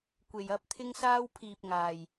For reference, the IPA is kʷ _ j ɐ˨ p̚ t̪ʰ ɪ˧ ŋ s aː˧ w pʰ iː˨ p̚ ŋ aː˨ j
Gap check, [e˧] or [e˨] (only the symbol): e˨